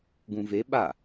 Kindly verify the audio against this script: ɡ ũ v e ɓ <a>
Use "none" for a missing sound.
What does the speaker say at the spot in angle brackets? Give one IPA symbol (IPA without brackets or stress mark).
a